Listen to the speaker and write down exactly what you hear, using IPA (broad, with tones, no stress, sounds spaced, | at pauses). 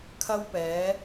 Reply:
kʰ ɐ˥ w p ɛː˨˥